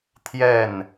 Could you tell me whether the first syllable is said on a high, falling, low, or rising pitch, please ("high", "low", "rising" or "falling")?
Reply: falling